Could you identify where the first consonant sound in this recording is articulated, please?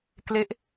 velar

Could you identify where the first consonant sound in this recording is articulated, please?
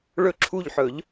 retroflex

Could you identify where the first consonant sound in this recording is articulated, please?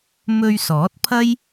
labial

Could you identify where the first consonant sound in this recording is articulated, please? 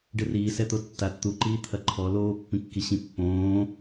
retroflex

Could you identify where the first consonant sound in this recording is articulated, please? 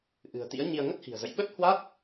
glottal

